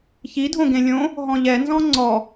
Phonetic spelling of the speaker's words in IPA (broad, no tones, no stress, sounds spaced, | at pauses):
ç i dʱ õ ɡ ẽ lʲ õ | ɦ ɔ̃ ʎ ɛ n z ɔ̃ ŋ͡ǀ ɔ